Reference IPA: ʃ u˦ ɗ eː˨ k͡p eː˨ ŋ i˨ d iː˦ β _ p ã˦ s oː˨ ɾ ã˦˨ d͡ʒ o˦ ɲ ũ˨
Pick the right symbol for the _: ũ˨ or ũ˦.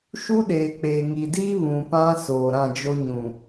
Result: ũ˨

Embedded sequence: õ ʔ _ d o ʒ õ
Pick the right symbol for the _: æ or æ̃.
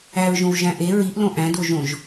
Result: æ̃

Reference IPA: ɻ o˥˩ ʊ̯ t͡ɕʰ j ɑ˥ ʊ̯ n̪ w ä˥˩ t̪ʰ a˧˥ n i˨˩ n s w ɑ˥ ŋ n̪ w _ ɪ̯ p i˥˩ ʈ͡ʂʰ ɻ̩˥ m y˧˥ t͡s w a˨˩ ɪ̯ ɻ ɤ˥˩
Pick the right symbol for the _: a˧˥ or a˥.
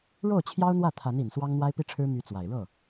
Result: a˥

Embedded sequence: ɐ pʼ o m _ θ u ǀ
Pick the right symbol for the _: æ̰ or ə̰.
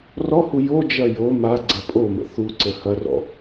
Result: ə̰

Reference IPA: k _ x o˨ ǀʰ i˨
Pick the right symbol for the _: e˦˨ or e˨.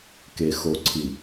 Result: e˨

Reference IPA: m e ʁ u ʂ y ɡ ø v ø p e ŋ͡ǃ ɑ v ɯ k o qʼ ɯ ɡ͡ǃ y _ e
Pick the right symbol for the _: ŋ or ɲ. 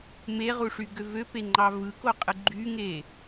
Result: ŋ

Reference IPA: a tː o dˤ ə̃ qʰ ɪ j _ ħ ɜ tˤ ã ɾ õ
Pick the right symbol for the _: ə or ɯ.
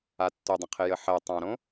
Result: ə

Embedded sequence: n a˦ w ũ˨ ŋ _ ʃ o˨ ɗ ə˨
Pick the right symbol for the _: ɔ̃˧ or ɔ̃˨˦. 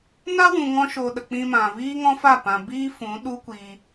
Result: ɔ̃˧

